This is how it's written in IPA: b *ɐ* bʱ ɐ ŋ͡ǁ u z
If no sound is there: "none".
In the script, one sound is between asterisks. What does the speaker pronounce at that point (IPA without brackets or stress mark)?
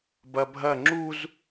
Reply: ɐ